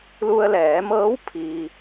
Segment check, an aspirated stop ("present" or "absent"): present